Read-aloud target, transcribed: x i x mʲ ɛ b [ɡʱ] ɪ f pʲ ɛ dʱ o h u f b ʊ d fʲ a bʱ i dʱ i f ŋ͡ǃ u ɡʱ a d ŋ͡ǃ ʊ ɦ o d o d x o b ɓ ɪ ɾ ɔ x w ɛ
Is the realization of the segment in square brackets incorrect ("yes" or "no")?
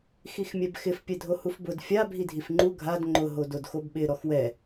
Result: yes